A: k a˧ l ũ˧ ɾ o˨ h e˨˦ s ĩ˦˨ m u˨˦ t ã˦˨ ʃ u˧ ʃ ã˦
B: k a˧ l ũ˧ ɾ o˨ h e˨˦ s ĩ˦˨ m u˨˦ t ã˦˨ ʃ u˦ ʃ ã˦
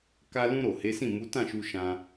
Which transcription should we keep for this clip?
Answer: A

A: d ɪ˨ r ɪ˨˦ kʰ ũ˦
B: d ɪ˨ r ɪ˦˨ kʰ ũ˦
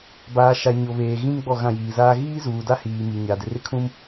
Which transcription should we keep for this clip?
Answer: B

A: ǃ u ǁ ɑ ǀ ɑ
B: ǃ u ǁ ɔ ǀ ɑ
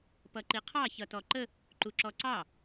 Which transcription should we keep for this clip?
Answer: B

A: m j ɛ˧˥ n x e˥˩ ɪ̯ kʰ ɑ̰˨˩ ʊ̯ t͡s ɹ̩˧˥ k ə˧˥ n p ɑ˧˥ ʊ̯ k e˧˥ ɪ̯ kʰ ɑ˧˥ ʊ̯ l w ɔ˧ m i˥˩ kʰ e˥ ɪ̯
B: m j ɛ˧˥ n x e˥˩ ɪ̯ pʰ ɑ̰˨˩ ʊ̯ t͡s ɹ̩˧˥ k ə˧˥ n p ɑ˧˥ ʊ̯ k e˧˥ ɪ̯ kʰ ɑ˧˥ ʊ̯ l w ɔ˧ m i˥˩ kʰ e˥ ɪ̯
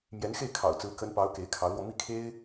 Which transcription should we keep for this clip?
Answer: A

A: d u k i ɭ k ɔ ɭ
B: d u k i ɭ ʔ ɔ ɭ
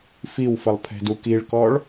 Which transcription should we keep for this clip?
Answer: A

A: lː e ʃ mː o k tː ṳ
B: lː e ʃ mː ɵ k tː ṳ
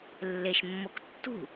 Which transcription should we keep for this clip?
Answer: A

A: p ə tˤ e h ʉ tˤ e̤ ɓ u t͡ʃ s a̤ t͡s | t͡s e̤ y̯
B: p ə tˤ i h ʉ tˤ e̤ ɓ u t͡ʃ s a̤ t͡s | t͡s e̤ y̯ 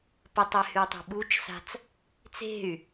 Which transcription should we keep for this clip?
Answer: A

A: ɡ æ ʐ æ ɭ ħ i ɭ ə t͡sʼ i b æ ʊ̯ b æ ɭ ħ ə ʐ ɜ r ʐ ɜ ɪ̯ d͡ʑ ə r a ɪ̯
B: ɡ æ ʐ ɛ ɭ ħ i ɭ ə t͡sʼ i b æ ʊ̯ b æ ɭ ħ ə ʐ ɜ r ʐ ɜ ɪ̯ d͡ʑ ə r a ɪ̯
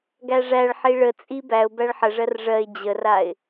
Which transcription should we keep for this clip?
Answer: A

